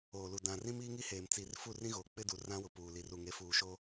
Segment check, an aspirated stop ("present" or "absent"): absent